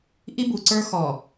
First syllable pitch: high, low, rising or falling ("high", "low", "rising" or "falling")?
high